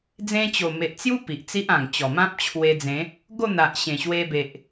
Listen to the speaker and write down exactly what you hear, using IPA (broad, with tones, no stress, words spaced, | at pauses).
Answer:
d͡zẽ˦ t͡ɕo˨˩me˨ʔt͡sju˦ pi˨ʔt͡si˦ʔã˨˩ŋt͡ɕɔ˨˩ mã˦p̚t͡ɕʰwe˧d͡zẽ˨˦ | ɡo˥˧n̪a˨ʔɕẽ˨˩ ɕwe˧be˨ʔ